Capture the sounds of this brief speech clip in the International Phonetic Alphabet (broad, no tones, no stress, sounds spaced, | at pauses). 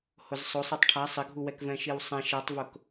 h ʊ z sˤ o sˤ i tˤ ʈʰ a sˤ ɪ ɡʱ u w ɛ k v ɛ̃ ʃ i w sˤ ɛ̃ ʃ ɛ tˤ v ʊ k